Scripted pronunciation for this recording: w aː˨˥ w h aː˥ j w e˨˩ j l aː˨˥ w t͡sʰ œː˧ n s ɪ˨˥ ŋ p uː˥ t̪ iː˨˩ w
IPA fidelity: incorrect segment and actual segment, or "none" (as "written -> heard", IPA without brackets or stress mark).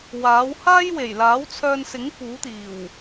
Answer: uː˥ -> uː˨˥